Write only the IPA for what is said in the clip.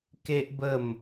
k e˦ ʔ b ə˥˧ m

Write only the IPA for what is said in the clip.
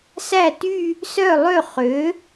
s æ˥˩ t y˥˧ | s œ˥˩ lˠ ø˥˩ χ ø˩˥

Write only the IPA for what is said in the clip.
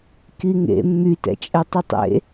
k i ŋ ḛ mː y t ɛ̰ t͡ʃʼ ɛ tˤ i tˤ ḛ

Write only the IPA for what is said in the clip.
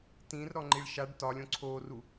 t ĩ r ɾ ɔ ŋ͡ǃ i ɭ ʃ a ɖ t ɒ lʲ õ ǀʰ o r u

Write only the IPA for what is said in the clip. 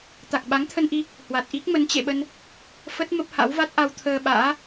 t̪ a˨˩ k̚ ɓ a˨˦ ŋ t̪ʰ ə˧ n ʔ i˧ | h w a˨˩ t̚ ʔ i˦˥ k̚ m ə˨˦ n t͡ɕ ḛ˧˨ ɓ ə˧ n | f ə˦˥ t̚ m ə˦˥ p̚ h a̰˧˥ w v a˦˥ t̚ ʔ a˧ w t̪ʰ əː˧ ɓ a̰ː˧˥

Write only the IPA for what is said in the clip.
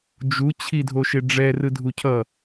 d͡ʒ u t͡ɕʰ i dʱ o ʃ e ɖ͡ʐ ɛ r ɯ dʱ u cʰ ʌ

